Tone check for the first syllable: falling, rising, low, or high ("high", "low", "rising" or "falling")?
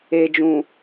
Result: low